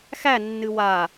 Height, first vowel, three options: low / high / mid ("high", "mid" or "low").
low